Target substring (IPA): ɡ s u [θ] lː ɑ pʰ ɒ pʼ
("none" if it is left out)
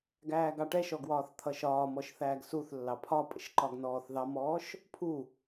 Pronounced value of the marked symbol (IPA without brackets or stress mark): θ